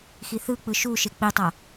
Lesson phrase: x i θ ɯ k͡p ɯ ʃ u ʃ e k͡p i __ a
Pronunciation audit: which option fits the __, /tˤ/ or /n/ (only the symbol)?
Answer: tˤ